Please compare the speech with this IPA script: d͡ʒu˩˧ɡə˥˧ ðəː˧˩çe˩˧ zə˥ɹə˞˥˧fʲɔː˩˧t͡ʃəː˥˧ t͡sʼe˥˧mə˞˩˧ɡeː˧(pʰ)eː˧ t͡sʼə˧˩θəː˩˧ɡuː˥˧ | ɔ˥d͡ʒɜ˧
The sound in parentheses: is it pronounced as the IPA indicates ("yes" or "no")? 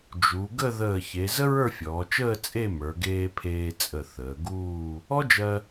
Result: yes